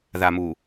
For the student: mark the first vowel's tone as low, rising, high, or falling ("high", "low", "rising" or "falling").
low